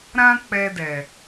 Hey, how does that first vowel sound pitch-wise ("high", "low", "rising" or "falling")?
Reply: high